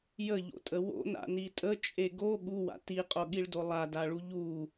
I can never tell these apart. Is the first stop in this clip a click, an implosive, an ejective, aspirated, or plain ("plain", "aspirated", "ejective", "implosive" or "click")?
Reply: ejective